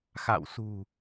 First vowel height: low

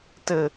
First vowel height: mid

